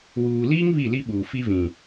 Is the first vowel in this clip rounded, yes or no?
yes